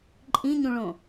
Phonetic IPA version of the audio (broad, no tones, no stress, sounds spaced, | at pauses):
ǃʼ ĩ ɲ ũ ɭ õ